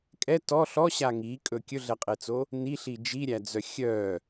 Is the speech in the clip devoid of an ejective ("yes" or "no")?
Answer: no